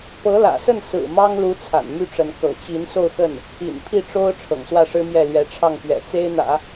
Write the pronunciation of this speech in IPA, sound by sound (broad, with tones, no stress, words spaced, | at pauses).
pɤ˧˥ lä̰˨˩sə˥˩n sɹ̩˨˩ mɑ˥ŋlu˧˥ t͡sʰa̰˨˩nmy˥˩ʈ͡ʂə˧˥n kɤ̰˨˩t͡ɕi˧˥n so˥˧ʊ̯xə˥˩n | ḭ˨˩npʰi˥˩ʈ͡ʂo˥ʊ̯ ʈ͡ʂʰɤ̰˨˩ŋswä˥˩ʂɻ̩˥mjɛ˥˩ lɥɛ˧˥ʈ͡ʂʰɑ˥˩ŋpɥɛ̰˨˩ t͡se˥ɪ̯n̪ä̰˨˩˦